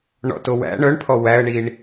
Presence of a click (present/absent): absent